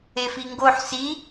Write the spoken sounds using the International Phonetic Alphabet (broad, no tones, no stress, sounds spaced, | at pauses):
e f i ŋ ɡ o ħ s i